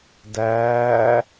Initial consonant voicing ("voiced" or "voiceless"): voiced